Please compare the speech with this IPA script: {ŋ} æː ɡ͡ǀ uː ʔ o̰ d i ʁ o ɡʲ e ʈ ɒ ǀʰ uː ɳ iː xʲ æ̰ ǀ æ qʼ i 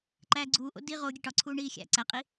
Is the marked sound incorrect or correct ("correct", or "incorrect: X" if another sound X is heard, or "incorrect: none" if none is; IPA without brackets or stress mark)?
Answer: incorrect: ǃ